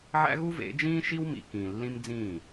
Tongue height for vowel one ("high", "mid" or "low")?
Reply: low